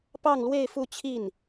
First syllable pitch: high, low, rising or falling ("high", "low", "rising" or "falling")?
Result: falling